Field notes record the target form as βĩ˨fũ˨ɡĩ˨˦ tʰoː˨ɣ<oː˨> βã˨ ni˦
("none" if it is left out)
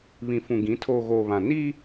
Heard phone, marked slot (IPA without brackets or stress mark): oː˨